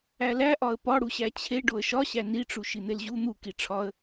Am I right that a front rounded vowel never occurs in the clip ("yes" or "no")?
yes